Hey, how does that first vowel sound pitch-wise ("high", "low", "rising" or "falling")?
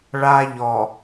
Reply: high